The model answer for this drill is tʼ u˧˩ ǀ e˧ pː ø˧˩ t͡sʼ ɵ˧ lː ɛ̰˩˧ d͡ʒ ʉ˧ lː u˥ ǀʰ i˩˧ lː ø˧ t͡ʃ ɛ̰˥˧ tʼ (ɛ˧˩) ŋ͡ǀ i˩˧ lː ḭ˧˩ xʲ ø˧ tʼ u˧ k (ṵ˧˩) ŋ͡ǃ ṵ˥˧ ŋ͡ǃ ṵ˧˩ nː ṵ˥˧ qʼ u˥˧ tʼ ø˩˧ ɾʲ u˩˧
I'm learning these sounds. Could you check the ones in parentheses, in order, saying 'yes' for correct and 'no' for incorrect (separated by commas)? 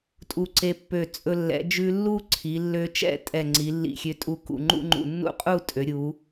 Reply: yes, yes